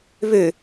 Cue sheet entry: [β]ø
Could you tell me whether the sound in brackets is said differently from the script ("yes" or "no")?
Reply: no